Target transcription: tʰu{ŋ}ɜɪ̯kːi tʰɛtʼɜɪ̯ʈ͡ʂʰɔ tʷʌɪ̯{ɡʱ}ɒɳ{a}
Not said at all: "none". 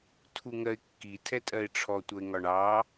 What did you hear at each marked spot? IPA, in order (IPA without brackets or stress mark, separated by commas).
ŋ, ŋ, ɑ